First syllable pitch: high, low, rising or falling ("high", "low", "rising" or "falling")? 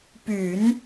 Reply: low